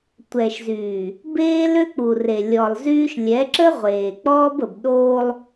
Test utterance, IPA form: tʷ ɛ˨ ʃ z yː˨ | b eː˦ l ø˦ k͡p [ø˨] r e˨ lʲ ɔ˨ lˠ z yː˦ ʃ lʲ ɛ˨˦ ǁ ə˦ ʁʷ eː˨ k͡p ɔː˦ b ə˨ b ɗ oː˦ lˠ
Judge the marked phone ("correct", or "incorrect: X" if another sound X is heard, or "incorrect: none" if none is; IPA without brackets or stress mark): incorrect: u˨